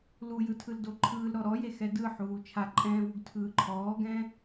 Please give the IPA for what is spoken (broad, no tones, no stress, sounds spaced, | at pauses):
l u j ɯ tʰ ɯ l d o ǃʰ ɯː l ɾ ɔ ɾ ɔ j e x ɛ d ɯ ħ uː t͡ʃʰ a ǃʼ ɛ̃ː v u ɡ tʰ ɯː ǃʰ ɔː ɡ ɛ̃